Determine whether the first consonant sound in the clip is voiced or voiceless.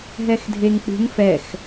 voiced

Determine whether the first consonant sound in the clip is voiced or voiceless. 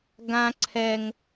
voiced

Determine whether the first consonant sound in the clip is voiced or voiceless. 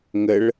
voiced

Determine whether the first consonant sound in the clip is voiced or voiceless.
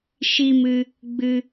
voiceless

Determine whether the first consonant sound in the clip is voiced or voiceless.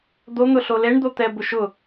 voiced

